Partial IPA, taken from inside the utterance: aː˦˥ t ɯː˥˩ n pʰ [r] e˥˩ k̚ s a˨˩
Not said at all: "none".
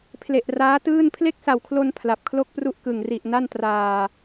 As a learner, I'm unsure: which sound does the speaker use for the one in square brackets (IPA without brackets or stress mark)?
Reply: l